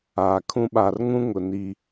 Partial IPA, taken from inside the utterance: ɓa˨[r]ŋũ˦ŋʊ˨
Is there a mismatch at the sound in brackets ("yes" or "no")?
no